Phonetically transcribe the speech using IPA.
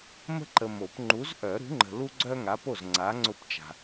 m ə̤˥ ǃ ə˨ m o˨˩˦ p ŋ͡ǃ u˨˥ z ʔ œ˨˩˦ ɾ ṳ˨˥ ŋ͡ǃ ə̤˨ l u˥ ɡ͡ǀ œ˥ ŋ a˨˥ p o˥˩ z ŋ͡ǀ a˨˥ ŋ͡ǀ ʊ˥˩ p t͡ʃ a̤˨

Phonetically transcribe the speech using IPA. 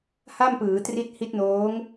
h a˥˩ m p ɯː˩˦ t r i˦˥ t̚ h i˦˥ t̚ n oː˦˥ ŋ

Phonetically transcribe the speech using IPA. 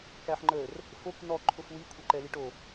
k æ ħ ŋ͡ǃ ə r | f o k n ɔ ǃʰ ʊ f w i kʷʰ ɛ ǃ ɛ l i ʈ o

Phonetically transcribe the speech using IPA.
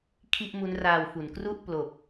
kʰ i˥˩ ʔ m u˦˥ n r aː˧ w f u˩˦ n k r u˥˩ ʔ p l o˨˩ k̚

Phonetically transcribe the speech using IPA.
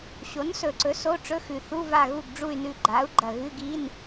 ɕ o˩˥ n s ɵ˨˩ ǀ ɵ˩˥ s o˧˥˧ ʈ͡ʂ ɵ˧˥˧ x ʉ˨˩ θ u˧˥˧ v a˦˨ ɣ u˦˨ ɡ ɖ͡ʐ u˦˨ y̯ n ʉ˦˨ ɡ͡ǃ a˩˥ u̯ ɡ͡ǃ ɐ˨˩ ɣ ɨ˧˥˧ ɡ i˧˥˧ n

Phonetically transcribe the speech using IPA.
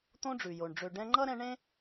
t̪ õ˦ ɖ͡ʐ ʉ˩ j o˩ ɳ ɖ͡ʐ ø˨ ɖ ɛ̃˦ ŋ͡ǃ ʌ˥ ɾ ɛ̃˦ ɳ ẽ˥

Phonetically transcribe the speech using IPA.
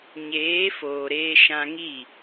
ɲ eː˨˦ f oː˨ ɾ eː˧ ʃ ã˧ ŋ i˦˨

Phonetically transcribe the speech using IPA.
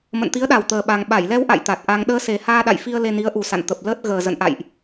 m ə̰˧˨ n t̪ i˨˦ ə̯ ɗ a˨˩ w t̪ əː˨˩ ɓ a˨˩ ŋ ɓ a˧˩ j l ɛ˧ w ʔ a̰˧˨ j t̪ a˨˩ t̚ ʔ a˧ ŋ ɗ əː˧ s e˨˩ h aː˧ ɗ a̰˧˨ j f i˧ ə̯ l e˧ n i˨˦ ə̯ ʔ u˨˩ s a̰˧˨ n t̪ ə˨˩ p̚ l əː˦˥ t̚ ɣ əː˨˩ z ə̰˧˨ n ʔ a̰˧˨ j ʔ

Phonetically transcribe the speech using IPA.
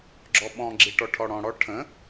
ɡ͡ǁ ɔ ɓ ɔ̃ ɡ͡ǁ i ʈ ɔ ʈʰ ɔ ɽ ɔ̃ ɽ ɔ ʈʰ ə̃

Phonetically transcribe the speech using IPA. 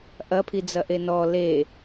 ʔ ɐ pʰ i d͡z ɐ ʔ e n ɔ l e

